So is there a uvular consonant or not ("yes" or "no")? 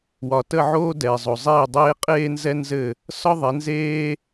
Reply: yes